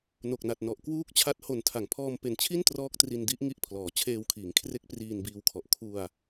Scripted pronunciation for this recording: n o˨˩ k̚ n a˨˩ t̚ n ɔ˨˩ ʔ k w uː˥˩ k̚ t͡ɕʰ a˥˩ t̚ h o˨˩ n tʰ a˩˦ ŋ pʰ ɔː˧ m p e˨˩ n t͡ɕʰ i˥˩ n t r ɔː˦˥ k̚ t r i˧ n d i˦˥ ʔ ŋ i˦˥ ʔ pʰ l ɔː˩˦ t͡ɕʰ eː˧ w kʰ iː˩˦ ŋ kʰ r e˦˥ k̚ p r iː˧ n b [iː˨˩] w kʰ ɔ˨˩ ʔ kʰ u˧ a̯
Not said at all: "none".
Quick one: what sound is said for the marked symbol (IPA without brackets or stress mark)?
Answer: iː˧